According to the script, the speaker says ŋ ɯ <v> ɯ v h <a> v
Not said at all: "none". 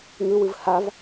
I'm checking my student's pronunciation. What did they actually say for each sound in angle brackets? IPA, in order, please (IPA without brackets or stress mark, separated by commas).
w, a